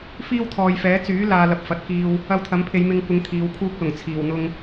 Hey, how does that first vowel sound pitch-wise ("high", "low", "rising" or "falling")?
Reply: high